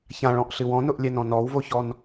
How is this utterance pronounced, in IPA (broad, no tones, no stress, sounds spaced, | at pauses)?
ç ã ɭ ɔ̃ ʔ ɬ ɨ w ɔ̃ n ʊ ʔ lʲ ɛ n ɔ̃ n ɔ w v o ç ɔ n